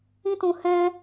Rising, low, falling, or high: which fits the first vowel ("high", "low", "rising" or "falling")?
high